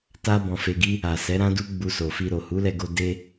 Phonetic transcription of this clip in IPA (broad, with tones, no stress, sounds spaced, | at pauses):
t a˦ b ɔ̃˧ f e˧ ɡ i˦ | a˨ s ɛ˨˦ ɾ ã˦ d u˦ ɡ͡b u˧ s o˨ f i˧ ɾ o˨ h u˨˦ l ɛ˧ ɡ o˧ d e˧